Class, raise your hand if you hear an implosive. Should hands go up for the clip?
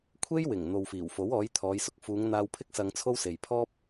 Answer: no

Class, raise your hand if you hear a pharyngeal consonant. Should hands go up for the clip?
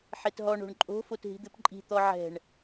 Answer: yes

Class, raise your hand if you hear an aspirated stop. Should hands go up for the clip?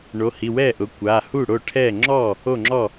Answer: yes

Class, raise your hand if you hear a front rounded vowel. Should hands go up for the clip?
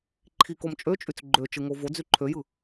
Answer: yes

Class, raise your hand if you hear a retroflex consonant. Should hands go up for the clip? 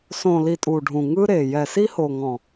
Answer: yes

